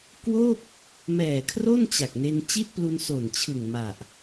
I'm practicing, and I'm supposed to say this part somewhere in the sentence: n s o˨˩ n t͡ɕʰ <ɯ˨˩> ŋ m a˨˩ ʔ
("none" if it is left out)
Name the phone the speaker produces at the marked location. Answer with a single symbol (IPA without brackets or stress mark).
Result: ɯ˨˩